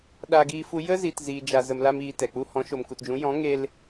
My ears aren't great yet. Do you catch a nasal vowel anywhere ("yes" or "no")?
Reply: yes